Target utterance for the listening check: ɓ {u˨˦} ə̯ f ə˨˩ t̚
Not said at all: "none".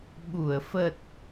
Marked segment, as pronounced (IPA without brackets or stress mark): u˧˩